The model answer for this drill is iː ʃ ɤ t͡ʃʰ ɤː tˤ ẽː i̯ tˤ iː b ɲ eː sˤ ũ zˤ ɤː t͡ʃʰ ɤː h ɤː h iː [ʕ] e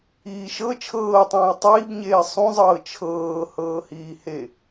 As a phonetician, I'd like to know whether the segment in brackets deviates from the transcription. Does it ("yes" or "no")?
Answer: yes